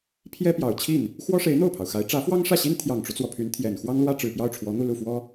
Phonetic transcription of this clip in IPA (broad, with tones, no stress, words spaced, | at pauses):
pʰjɛ˥pjɑ˨˩ʊ̯t͡ɕʰi˥˩n | xwɔ˥ʂe˧˥ɪ̯ n̪o˥˩ʊ̯pʰɑ˩ʊ̯xa˧˥ɪ̯ ʈ͡ʂä˧˥fwɑ˥ŋʂä˥˩ɕi˥n t̪ʰjɑ˨˩ŋʈ͡ʂu˦t͡swɔ˩ pʰy˧˥n t̪ʰjɛ˨˩n xwɑ˥ŋlwä˥ ʈ͡ʂɻ̩˨˩pjɑ˥˩ʊ̯ ʈ͡ʂʰwɔ˧˥n̪u˥˧lu˥˩fwɔ˥